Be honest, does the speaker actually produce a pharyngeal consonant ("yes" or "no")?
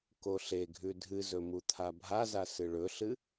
no